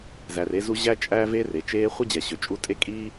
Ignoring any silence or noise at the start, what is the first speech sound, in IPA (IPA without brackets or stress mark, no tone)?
z